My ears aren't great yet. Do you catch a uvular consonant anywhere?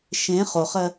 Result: yes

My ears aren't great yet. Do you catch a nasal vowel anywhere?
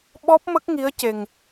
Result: no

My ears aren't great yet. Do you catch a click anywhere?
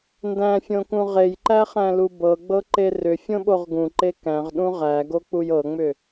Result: yes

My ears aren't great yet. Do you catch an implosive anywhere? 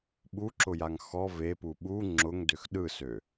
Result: yes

